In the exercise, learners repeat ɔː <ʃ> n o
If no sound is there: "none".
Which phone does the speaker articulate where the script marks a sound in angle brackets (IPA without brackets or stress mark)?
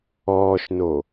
ʃ